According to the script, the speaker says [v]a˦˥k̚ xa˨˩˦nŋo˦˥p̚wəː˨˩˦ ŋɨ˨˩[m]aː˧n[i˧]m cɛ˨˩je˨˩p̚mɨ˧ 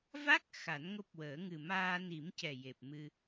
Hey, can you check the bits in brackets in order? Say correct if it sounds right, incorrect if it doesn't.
correct, correct, incorrect: i˨˩˦

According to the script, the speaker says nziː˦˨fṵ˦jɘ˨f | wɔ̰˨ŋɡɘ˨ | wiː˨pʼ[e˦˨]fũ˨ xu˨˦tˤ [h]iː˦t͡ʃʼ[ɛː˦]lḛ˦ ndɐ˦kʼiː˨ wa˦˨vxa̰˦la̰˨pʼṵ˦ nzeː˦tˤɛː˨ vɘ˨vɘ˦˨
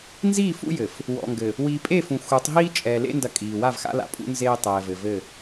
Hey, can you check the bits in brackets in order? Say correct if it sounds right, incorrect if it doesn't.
correct, incorrect: ɦ, incorrect: ɛː˨

